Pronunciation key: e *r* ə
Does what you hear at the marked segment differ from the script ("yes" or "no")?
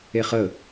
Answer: yes